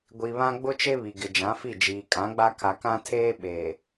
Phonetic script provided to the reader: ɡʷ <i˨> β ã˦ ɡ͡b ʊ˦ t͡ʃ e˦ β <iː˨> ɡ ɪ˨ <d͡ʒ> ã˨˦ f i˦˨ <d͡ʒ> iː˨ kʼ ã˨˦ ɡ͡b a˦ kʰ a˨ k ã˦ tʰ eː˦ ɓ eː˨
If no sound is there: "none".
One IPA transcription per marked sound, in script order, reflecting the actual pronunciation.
i˨, i˨, d͡ʒ, d͡ʒ

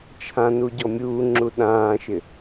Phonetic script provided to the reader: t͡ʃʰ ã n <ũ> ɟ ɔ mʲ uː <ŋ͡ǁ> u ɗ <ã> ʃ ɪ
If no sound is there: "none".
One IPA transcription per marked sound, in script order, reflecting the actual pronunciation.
u, ŋ͡ǁ, ãː

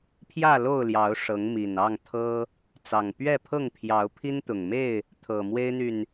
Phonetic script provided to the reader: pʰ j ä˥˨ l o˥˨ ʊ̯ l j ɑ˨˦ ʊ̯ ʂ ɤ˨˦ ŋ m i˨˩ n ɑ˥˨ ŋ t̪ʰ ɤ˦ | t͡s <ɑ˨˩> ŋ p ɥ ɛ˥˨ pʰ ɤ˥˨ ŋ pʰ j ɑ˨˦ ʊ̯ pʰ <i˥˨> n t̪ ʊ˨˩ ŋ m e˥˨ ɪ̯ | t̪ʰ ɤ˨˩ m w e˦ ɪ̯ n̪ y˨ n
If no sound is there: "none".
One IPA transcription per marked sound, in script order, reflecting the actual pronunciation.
ɑ˨˩, i˦

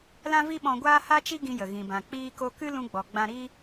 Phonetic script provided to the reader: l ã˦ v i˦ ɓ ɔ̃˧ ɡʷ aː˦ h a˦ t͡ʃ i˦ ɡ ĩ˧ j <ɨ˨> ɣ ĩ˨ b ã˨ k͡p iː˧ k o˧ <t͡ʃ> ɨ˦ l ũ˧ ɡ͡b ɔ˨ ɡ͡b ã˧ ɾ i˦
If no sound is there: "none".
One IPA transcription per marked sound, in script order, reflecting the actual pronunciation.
ə˨, k

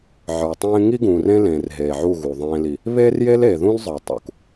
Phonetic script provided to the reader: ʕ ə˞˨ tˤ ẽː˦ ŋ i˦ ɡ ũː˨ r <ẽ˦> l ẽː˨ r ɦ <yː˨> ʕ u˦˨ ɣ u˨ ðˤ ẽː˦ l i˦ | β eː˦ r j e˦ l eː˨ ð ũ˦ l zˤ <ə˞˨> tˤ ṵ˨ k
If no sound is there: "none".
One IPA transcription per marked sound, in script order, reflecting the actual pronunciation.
ẽ˦, eː˨, ə˞˨

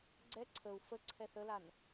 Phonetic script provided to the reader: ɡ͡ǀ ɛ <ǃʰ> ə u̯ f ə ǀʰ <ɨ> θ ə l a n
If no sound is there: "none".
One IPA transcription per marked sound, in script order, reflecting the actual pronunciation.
ǀʰ, ɛ

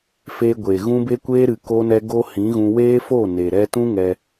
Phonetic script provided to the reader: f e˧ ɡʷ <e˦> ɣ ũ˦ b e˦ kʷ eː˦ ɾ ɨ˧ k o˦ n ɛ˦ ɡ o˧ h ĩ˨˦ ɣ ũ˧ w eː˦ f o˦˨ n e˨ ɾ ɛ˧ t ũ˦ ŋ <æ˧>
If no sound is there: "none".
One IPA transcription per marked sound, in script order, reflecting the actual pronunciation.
e˨, ɛ˧

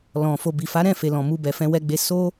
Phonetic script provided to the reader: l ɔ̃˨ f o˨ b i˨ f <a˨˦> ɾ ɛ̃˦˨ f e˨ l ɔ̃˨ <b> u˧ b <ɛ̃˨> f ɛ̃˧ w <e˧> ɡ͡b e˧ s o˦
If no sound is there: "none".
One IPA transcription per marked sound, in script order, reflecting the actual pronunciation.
a˨˦, m, ɛ˨, ɛ˧

